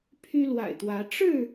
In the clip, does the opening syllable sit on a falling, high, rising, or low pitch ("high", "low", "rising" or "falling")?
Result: high